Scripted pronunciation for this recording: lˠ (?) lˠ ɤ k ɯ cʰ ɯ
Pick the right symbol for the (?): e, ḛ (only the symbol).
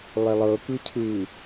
e